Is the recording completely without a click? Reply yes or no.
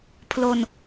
yes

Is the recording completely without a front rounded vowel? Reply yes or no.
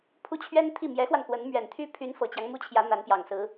no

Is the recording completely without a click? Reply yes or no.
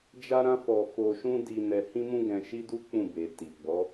yes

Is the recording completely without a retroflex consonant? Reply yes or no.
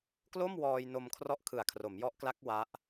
yes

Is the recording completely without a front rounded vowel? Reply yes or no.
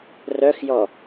no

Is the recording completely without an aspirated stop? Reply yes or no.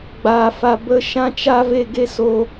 yes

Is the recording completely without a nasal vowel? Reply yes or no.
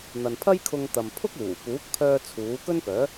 yes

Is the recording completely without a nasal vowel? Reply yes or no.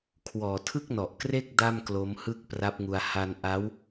yes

